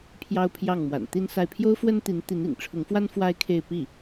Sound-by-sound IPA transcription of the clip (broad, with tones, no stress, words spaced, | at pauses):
pʰjɑ˥ʊ̯pʰjɑ˥˩ŋ mwa̰˨˩nt̪i˥nsa˥˩ɪ̯ pʰjo˥ʊ̯fwə˥nt̪i˧˥n t̪i˧˥nḭ˨˩ŋʈ͡ʂʰʊ˧˥ŋfwa˥n fwa˥ɪ̯kʰe˥˧ɪ̯ pi˥˩